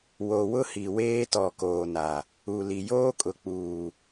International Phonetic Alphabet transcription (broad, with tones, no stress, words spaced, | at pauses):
wo˨wʊ˦hi˨ weː˦tɔ˨ koː˨na˨ | u˨li˨ joː˦kʼʊ˨k͡puː˨